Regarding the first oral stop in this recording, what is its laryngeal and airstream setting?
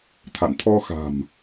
aspirated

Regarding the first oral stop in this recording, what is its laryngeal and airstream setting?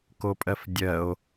plain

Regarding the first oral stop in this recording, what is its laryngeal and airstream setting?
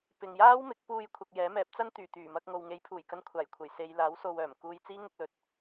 plain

